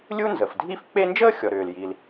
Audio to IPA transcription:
lʲ u˥ n z ə˩ f dʱ i˥ f k͡p e˥ n d͡ʒ əː˥ xʲ ɔ˩ ɾ ʏː˩ l j i˩ l

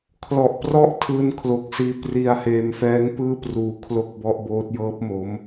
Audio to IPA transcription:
kʰ l ɔ˨˩ ʔ p r ɔ˦˥ ʔ tʰ ɯː˧ n kʰ l o˨˩ k̚ s iː˧ p r i˧ a̯ h eː˧ m f ɛː˦˥ ŋ p ɯː˥˩ p r uː˧ kʰ l o˥˩ k̚ b ɔ˦˥ ʔ b oː˦˥ t̚ j ɤː˦˥ p̚ m o˦˥ m

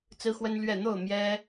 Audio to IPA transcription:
t͡s ɹ̩˦ x w ə˦ n l ɥ ɛ˥˨ n̪ o˥˨ ʊ̯ m j ɛ˦

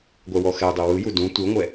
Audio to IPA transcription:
ɡʷ ɛ w ɔ x ɛ dˤ e w ɯ j u d ũ tʷ ɯ ŋʷ ɛ

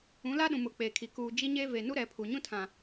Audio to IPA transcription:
ũ˨˦ l a˦ ɗ ũ˨ m ʊ˨ k͡p eː˨ kʰ i˨ k uː˨ d͡ʒ i˦ ɲ e˦ v e˨ n u˦ ɾ ɛ˨˦ pʰ u˨ ɲ ũ˦ tʰ ã˨

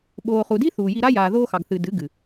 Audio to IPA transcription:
ɓ oː˨ χ u˨ d i˦ θ uː˨ j i˧ ɾ a˦ j aː˨ ð oː˧ x ɑ˨ ɡ θ ɨ˨ d ɨ˨˦ ɡ ɨ˨

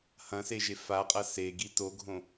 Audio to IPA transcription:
h ɐ̃ s e ʒ e f a qʼ ɐ s e ɡ i t o ɡʱ õ

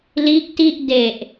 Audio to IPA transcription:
l iː˦˥ k̚ t i˥˩ ʔ d e˨˩ ʔ

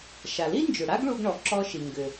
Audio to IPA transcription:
ʃ a˩ l i˥ n d͡ʒ ʏ˩ ɽ a˥ ɡ ɭ u˧ ɡ ɳ ɔ˩ ǁ ɔ˧ ʃ i˩ ŋ ɡ ʏ˩

